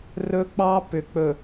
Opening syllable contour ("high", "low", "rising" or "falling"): high